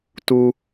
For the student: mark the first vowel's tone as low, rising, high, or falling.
high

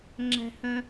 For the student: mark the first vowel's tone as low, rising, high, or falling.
high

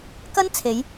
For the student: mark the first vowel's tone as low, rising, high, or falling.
high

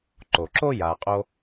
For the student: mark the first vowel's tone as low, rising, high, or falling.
low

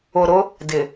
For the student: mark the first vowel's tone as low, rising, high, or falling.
low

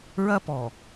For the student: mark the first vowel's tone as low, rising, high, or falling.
high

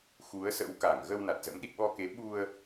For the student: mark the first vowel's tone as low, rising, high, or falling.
rising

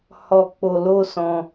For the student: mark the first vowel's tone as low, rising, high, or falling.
low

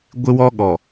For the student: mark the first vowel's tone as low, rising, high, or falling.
high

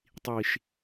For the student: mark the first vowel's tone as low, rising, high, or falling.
low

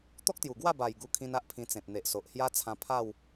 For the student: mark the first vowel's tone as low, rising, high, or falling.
high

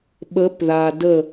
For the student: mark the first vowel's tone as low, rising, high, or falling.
rising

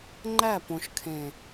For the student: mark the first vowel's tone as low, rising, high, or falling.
falling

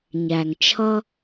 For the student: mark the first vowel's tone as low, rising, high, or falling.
low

